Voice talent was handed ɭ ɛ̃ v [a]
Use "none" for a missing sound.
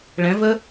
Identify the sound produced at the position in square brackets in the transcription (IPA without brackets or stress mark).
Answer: ə